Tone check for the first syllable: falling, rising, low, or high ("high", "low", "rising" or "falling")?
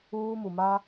high